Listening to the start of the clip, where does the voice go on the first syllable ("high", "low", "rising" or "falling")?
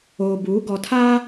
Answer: low